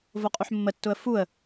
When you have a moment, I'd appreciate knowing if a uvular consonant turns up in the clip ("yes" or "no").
yes